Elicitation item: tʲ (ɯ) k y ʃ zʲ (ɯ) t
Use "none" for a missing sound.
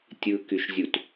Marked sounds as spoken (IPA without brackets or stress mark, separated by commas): ɯ, u